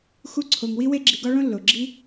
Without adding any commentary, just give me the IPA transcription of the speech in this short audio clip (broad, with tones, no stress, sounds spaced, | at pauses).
x u˦ ǀʰ o˧ ŋ w i˦ w e˦ ɡ͡ǁ i˧ ɡ ɒ˦ ɭ õ˧ lː o˨ ɡ͡ǁ i˦